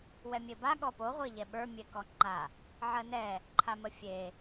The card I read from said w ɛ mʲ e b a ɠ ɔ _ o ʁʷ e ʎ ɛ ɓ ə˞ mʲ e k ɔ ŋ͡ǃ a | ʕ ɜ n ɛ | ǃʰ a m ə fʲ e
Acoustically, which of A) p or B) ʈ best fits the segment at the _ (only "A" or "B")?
A